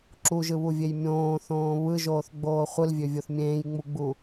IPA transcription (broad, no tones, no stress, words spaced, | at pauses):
ǁuʒɯβuvʲej mʲõːθõː βɯʒoːθɡ͡boː χʷɯlvʲøvʲoθ mʲẽːjŋ͡muɡ͡bu